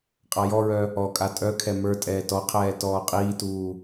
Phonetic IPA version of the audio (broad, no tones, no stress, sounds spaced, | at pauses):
qʼ a j ɔ ɹ œ | ɔ kʼ a tʼ œ kʰ ɛ m ə˞ tʼ ɛː t ɔ qʰ ɛː t ɔː qʼ iː t uː